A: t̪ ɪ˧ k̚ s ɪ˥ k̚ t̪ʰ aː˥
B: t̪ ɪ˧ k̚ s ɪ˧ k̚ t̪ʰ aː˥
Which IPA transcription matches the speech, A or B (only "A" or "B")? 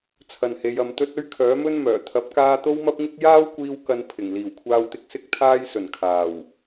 A